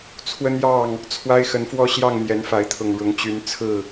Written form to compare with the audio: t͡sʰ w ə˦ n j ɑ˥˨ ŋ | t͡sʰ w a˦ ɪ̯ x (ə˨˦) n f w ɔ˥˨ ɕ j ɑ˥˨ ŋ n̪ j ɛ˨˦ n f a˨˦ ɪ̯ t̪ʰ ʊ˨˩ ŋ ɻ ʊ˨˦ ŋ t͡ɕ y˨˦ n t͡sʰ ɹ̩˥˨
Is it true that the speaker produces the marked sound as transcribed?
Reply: yes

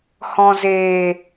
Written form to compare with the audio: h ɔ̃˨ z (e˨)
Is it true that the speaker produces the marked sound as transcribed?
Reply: no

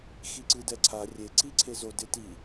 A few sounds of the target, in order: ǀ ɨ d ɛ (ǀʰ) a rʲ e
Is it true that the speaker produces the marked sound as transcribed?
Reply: yes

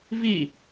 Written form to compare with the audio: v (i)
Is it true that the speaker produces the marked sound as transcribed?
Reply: yes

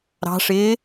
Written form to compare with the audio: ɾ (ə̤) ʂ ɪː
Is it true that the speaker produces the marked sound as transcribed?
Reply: no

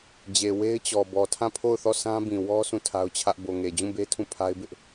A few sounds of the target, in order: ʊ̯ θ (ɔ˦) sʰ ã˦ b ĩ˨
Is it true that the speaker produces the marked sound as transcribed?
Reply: no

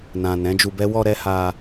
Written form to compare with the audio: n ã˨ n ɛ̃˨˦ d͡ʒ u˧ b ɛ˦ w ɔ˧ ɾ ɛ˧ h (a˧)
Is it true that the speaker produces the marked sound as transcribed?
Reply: yes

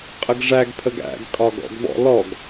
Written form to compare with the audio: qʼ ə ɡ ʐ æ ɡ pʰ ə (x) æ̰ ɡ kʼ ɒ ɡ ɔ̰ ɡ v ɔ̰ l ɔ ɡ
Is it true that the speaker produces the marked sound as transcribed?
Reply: no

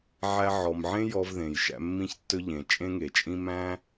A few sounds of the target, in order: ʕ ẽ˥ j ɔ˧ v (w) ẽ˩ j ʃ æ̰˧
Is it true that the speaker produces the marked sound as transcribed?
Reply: no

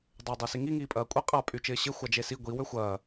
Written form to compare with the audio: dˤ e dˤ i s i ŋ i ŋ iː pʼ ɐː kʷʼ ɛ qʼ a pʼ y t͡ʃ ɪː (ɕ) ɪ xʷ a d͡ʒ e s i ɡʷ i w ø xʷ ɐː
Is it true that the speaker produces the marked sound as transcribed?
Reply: yes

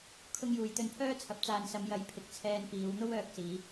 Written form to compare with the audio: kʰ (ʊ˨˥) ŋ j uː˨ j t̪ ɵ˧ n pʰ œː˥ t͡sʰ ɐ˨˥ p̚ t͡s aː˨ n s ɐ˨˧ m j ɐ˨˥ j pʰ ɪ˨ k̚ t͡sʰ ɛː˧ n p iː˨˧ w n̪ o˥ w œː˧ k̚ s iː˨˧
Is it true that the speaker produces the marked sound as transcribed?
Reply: no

